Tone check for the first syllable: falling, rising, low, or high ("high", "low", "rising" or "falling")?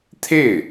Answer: falling